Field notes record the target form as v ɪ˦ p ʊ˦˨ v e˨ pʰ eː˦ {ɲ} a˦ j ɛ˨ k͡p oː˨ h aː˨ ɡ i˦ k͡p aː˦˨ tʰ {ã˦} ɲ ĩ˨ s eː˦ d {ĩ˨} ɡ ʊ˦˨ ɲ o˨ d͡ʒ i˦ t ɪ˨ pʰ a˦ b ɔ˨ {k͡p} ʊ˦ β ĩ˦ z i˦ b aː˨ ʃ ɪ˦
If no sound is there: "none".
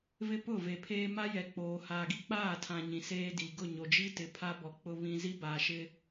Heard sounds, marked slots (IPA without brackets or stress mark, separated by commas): m, ã˨, i˨, k͡p